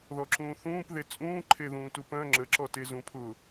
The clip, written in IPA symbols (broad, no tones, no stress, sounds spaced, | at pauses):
ð ɔ ǁ ũː θ ũː p ð e t͡sʼ ũː ǃʰ e ð ũː t u p œ̃ ŋ͡ǁ ə ǁ ɔ t e z ũ pʰ ʊ